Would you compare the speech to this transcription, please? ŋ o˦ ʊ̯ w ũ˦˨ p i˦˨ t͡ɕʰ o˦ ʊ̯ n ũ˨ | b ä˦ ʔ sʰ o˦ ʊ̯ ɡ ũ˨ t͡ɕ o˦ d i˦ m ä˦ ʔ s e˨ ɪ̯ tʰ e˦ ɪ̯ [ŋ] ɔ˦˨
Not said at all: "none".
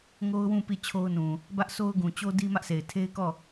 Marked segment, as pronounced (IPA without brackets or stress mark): k